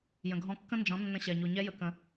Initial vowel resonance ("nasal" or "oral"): nasal